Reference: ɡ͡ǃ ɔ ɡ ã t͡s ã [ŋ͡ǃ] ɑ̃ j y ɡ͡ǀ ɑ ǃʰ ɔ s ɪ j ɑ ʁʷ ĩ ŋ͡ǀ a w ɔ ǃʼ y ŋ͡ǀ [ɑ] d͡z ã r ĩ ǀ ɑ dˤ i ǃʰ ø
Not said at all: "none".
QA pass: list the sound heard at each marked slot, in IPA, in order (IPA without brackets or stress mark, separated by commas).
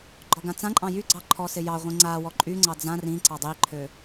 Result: ǃʼ, ɑ